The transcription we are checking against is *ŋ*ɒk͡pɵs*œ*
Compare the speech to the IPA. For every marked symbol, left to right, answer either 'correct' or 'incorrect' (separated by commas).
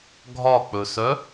incorrect, correct